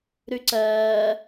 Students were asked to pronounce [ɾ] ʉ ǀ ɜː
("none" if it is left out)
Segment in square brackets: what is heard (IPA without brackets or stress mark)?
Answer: ɾ